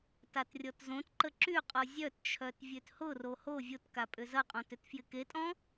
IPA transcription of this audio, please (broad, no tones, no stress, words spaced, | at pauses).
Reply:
tatrʲɔtzõtǃə ǁyqʼɔ zʲœtt͡ʃʰœt vʲøthʊro ho vʲotka pʼʏzɐqʼɔ̃t ʏtfjɪketʼɔ̃